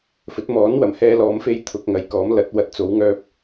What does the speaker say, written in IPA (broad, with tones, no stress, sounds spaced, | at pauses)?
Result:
f ɵ˨˥ t̚ m ɔː˨˥ n w ɐ˨˩ m h ɛː˧ l ɔː˨˧ m f e˧ j t̪ʰ ʊ˨ k̚ ŋ ɐ˨˧ j k ɔː˨˥ m l ɐ˨˥ t̚ w ɐ˨˥ t̚ t͡s o˨˥ w ŋ œː˧ p̚